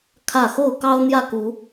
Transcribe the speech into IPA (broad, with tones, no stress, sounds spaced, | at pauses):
kʰ ä˥˨ x o˥˨ ʊ̯ k ɑ˦ ʊ̯ n̪ j ä˥˨ k u˨˦